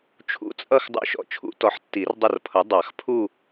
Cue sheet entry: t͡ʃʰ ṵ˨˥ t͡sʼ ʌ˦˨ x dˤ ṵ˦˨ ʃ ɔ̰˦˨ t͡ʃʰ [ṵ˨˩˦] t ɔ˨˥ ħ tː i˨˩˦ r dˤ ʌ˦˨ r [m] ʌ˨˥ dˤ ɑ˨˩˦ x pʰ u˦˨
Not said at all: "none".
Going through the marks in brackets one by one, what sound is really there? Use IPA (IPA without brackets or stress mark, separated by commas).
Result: ṵ˨˩˦, pʰ